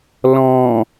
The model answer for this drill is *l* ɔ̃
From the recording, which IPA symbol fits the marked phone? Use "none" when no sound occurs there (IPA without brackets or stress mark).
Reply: l